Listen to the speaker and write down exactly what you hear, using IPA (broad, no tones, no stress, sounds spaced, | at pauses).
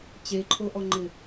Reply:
t͡ɕ e ǃʰ o ʔ ɔ ŋ͡ǃ ɪ